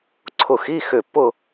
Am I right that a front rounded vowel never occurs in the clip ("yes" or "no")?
no